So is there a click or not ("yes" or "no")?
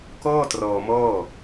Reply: no